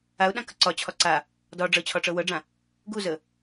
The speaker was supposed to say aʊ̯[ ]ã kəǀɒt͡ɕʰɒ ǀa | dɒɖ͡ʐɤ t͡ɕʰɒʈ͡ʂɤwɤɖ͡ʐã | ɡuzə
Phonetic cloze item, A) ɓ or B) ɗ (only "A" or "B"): B